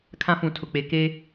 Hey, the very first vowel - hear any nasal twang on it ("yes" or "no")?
yes